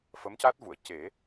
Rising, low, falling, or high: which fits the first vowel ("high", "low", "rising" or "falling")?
rising